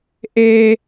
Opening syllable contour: low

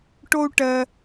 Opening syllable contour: high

